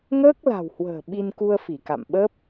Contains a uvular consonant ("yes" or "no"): no